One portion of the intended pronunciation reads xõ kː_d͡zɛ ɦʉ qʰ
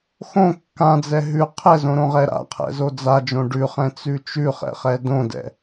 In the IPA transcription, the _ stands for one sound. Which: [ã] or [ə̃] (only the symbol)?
ã